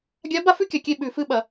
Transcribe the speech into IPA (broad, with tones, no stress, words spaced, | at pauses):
ɡʲa˧˥ ba˥fʉ˥kʲa˨˩kʲe˦˨ ɓʉ˨˩fɨ˦˨ ɓɐ˧˩˧